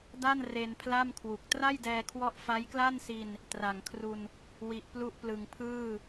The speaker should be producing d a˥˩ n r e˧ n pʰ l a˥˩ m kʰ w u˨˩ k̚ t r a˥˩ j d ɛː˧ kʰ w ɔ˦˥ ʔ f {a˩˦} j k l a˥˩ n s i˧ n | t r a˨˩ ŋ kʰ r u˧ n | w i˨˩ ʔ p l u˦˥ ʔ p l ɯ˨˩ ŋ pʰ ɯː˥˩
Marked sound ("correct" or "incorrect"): incorrect